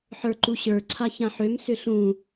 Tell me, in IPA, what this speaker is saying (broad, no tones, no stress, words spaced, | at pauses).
ħə˞ǃuɕə˞ ǀʰaçãħøm sʏɬũ